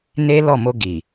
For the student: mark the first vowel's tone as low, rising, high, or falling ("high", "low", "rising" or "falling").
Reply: high